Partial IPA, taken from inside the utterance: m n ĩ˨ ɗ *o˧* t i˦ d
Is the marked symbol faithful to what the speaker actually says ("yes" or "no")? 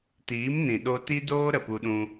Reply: yes